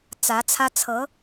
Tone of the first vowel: rising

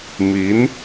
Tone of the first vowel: rising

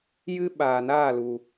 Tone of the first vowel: high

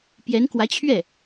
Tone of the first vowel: rising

